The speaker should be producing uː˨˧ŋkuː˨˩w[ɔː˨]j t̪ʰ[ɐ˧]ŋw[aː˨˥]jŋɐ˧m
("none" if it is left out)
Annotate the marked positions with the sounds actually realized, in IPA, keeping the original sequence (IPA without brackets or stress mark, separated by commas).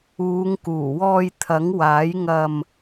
ɔː˧, ɐ˨˥, aː˨˥